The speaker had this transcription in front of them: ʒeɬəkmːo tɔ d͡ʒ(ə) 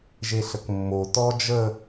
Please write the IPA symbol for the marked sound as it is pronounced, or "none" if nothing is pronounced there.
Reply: ə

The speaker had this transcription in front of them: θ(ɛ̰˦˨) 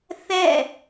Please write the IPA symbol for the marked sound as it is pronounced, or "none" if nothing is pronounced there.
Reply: ɛ̰˦˨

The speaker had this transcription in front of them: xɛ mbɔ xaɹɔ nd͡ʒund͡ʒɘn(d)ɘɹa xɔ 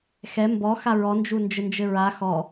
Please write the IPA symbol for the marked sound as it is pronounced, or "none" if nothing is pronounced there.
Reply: d͡ʒ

